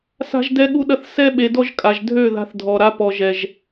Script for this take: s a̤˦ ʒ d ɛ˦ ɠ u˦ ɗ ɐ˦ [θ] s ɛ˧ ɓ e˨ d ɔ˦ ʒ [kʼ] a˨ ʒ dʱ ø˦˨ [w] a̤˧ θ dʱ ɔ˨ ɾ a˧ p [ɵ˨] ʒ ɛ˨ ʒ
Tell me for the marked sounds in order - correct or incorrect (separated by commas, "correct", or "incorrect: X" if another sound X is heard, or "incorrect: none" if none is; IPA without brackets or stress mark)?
correct, correct, incorrect: ð, incorrect: ɔ˨